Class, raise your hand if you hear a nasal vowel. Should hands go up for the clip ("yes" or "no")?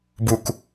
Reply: no